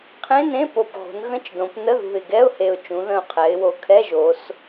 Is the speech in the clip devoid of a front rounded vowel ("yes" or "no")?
yes